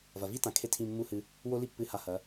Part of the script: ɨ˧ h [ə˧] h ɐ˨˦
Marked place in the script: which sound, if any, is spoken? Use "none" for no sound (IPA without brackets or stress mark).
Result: a˧